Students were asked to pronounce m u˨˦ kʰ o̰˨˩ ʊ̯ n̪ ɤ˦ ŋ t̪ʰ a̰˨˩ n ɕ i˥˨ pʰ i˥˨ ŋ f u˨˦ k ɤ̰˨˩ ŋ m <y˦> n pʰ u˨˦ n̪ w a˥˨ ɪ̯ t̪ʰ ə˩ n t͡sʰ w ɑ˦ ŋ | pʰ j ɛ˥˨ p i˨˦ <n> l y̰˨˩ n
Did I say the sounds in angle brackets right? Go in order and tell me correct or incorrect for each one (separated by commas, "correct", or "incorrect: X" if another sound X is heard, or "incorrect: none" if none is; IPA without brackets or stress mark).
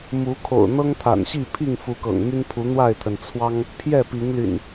correct, incorrect: ŋ